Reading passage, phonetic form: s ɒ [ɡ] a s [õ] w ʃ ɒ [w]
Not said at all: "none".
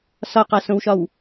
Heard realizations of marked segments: q, õ, w

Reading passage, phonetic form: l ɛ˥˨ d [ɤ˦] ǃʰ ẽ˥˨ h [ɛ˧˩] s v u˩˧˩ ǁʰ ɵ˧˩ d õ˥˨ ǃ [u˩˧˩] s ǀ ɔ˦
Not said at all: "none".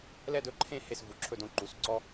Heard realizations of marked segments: ɵ˦, e˧˩, u˩˧˩

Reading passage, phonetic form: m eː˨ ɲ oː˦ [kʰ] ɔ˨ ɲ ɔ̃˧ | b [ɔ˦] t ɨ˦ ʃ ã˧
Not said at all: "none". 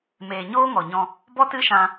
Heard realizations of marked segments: ŋ, ɔ˦

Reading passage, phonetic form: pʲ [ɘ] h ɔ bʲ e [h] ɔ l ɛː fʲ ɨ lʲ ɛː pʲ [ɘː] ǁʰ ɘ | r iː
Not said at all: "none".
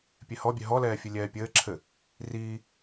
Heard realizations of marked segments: e, ɦ, ɘː

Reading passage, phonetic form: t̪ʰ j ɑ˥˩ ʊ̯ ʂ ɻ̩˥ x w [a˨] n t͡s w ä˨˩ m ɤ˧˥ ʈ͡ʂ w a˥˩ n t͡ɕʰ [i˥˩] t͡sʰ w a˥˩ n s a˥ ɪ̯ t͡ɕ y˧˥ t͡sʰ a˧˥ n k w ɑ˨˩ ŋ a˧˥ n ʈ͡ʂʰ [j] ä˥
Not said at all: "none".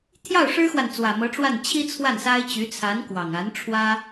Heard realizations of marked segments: a˨, i˥, w

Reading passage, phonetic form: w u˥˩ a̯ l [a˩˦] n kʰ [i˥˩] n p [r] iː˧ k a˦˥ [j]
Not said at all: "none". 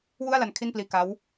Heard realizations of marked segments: a˦˥, i˥˩, l, w

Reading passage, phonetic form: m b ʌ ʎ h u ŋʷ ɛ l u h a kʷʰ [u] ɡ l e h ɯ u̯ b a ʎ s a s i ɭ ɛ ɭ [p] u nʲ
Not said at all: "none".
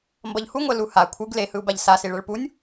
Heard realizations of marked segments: ɯ, p

